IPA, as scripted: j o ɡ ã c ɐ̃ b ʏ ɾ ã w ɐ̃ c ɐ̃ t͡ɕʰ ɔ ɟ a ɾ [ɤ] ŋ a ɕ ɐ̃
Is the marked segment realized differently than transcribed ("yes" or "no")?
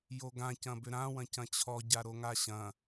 yes